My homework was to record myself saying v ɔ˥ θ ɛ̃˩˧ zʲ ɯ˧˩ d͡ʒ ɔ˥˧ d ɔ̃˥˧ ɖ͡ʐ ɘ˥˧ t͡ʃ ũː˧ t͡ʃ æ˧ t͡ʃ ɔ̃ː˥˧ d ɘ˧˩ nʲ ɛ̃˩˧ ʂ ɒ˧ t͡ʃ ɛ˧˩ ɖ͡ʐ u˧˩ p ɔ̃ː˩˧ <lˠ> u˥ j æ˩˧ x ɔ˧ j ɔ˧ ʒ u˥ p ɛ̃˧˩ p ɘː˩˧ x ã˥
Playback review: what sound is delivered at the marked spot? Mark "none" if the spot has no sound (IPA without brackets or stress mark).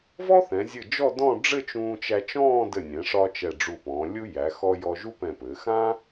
lʲ